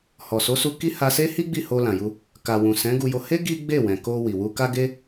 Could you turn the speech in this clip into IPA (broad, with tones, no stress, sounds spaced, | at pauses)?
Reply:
h ɔ˨ s o˨˦ s u˧ k i˦ h a˧ s e˦ h i˦ ɡ͡b i˦˨ h o˧ l ã˨ j u˧ | k a˨ w ũ˨ s ɛ̃˨˦ ɡ u˧ j o˧ h e˦ ɡ i˦ ɡ͡b e˦˨ w ɛ̃˨ k o˧ w i˨ w u˧ k a˦ ɡ e˦